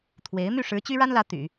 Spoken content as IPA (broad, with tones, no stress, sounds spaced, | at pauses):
t̪ʰ w e˧˥ ɪ̯ m y˥˩ ʂ ɻ̩˧˥ t͡ɕ y˥ ɻ a˥ n l ä˧˥ t̪ y̰˨˩˦